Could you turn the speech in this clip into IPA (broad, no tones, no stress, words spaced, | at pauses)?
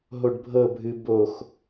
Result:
ɦoɖbʱɤbʱɨ box